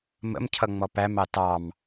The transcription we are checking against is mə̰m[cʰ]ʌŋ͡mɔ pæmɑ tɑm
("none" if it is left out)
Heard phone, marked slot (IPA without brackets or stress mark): cʰ